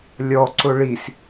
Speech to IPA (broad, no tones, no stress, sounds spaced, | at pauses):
lʲ ɔ ǀ ʊ ɭ i s